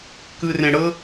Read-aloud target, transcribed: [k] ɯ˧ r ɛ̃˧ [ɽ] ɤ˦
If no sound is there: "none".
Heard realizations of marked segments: k, ɽ

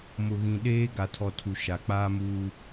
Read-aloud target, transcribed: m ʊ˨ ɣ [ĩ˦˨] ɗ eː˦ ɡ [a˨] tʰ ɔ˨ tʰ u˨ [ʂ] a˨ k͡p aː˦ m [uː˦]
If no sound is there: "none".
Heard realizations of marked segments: ĩ˨, a˨, ʃ, uː˦

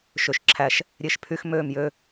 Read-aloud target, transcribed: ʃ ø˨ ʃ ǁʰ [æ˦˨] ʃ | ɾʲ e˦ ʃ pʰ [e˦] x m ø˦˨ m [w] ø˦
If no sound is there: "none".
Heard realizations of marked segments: æ˦˨, y˦, j

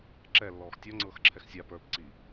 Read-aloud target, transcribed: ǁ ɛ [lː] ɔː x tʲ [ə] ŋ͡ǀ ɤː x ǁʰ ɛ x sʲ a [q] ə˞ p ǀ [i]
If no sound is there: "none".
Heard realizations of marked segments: lː, ɔ, p, i

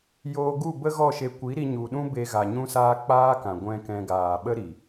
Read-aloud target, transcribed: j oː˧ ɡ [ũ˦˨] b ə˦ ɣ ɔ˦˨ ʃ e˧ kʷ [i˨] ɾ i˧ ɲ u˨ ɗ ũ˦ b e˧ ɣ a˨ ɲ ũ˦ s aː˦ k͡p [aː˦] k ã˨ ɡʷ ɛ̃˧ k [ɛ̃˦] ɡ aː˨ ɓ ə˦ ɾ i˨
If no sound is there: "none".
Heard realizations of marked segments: u˦˨, i˨˦, aː˦, ɛ̃˧

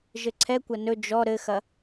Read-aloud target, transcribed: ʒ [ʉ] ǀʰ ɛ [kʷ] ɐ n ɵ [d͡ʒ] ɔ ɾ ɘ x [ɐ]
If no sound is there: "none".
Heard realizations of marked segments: ɘ, kʷ, d͡ʒ, ɐ

